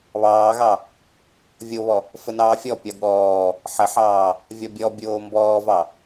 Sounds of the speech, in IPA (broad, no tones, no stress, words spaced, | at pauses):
βɑːɣɑ | vʲoβɔ | fənɑːfʲɔpʲɒ ɠɔː | ħəħɑː | vʲɒbʲɔ bʲoːmbɔːvɑ